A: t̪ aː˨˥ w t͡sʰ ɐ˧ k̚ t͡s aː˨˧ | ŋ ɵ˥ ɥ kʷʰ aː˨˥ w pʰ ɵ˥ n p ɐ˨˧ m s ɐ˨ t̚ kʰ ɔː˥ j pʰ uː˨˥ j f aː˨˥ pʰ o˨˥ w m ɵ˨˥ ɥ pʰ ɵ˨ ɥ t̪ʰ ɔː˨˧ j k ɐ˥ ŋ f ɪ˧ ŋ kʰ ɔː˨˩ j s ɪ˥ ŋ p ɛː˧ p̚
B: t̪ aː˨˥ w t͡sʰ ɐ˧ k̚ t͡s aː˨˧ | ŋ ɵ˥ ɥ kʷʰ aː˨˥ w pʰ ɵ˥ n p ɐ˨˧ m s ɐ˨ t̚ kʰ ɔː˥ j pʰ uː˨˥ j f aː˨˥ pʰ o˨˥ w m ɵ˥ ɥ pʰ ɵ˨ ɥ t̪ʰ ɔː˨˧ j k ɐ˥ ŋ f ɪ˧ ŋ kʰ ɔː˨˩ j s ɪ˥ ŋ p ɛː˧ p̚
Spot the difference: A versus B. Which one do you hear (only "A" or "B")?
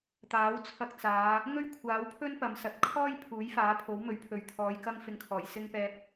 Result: A